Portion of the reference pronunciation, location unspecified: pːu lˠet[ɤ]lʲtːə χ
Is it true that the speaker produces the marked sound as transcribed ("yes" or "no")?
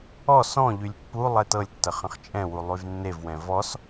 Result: yes